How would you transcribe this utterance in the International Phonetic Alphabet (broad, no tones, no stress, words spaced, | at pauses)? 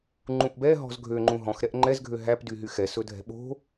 ŋ͡ǃũʔbɛ ɦɔ̤zɡʱøŋ͡ǃũ ɦɔ̃xɾɛʔ ŋ͡ǃɛzɡʱø ɦæp dyɦyxɛ sɵdʱɛ̤ɓo̤